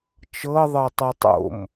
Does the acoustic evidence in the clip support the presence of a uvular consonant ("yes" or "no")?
no